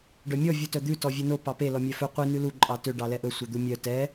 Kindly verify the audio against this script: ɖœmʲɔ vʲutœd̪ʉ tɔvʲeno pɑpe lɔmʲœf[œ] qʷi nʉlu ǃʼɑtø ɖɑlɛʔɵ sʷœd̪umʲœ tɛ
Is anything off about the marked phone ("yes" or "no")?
yes